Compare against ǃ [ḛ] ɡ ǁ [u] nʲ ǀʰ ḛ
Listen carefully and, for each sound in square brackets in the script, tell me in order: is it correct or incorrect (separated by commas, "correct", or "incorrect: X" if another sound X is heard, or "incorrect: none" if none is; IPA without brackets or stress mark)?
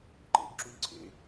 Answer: correct, correct